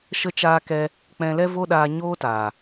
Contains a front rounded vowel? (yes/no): no